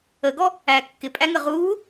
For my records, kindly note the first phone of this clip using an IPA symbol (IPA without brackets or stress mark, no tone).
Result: ə